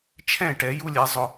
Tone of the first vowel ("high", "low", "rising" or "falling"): falling